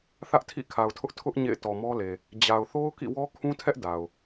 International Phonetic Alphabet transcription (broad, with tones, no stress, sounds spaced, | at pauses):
θ ä˦ ʔ tʰ ḭ˦˨ kʰ a˨ ʊ̯ tʰ ʊ˦ ʔ tʰ ʊ˦ ʔ ɲ ḛ˦˨ ɪ̯ t ɔ˨ m ɔ˦ l e˨ | d͡ʑ a˨ ʊ̯ θ o˦ ʊ̯ k ḭ˦˨ w ɔ˦ kʰ ũ˦ tʰ ɛ˦ ʔ d a˨ ʊ̯